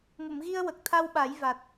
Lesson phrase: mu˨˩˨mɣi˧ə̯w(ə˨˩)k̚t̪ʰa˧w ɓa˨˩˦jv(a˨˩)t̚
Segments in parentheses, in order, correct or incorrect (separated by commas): correct, correct